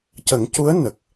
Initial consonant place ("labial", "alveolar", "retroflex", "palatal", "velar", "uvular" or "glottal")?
palatal